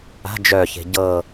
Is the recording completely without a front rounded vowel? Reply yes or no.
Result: no